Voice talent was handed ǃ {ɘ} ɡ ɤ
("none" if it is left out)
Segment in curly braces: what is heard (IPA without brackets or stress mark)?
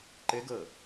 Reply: ɘ